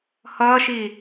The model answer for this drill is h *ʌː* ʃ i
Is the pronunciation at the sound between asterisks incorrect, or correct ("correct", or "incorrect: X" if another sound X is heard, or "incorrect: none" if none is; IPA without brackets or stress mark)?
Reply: correct